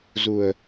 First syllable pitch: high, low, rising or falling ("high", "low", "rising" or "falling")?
low